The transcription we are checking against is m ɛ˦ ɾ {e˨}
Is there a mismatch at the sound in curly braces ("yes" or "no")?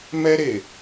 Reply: no